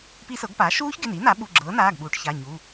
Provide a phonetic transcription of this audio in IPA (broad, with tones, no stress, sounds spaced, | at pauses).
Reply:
p i˦˥ s ɤ˩˥ ɡ p aː˩˥ ʃ uː˦˥ ç ɡ ɪ˩˧˩ n i˩˥ n a˩˥ ɓ u˩˧˩ ɡ͡ǁ ɤː˩˥ n aː˩˧˩ ɡ ɓ uː˩˥ ʈ ç a˩˧˩ ɲ u˩˧˩